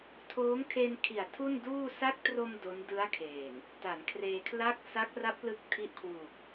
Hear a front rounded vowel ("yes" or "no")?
no